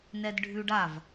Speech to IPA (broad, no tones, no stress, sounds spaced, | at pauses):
n ɛ d ɖʱ ʉ ɖ a v